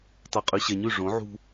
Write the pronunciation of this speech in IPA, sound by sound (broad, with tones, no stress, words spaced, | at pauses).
tˤœ˨qʼʉ˨ɕɛ˨ɲʉ˦˨ ʐõ˨˦ʕṳ˦